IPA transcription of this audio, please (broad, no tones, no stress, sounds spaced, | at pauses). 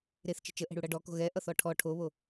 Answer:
ɾ e θ t͡ʃ ə̤ t͡ʃ ə ʔ ɛ̤ ɽ u ɽ ʌ ɖ ɔ k o̤ ɣ ɛ ʔ ʌ θ ɔ ʈʰ ɔ ʈʰ o β o